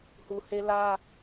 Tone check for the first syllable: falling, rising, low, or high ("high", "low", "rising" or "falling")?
low